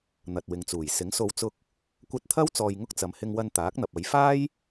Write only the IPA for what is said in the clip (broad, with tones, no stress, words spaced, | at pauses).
n̪ɐ˨t̚wɪ˨ŋt͡suː˨˩j sɪ˨˥ŋso˧w t͡sʊ˧k̚ | kʷɐ˧t̚t̪ʰɐ˥w t͡sɔː˧jŋʊ˥k̚t͡sɐ˨˧m hɪ˧ŋwɐ˧n t̪aː˨˥k̚n̪ɐ˨p̚ɐ˨˧j faː˥j